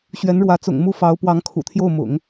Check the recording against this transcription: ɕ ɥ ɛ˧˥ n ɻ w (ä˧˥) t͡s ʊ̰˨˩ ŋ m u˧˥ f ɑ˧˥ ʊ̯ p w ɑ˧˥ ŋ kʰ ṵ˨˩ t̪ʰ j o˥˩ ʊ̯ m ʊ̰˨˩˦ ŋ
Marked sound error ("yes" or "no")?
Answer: no